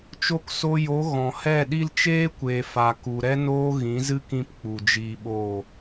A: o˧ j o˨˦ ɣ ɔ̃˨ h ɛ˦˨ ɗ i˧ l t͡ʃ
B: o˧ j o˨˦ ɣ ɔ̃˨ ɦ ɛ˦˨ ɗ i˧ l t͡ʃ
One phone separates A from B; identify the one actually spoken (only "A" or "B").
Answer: A